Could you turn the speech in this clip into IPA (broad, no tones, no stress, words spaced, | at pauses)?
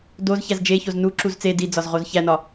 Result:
doz çæzd͡ʒeçoz nuǁuz t͡se did͡zɒz ʁozçænɒ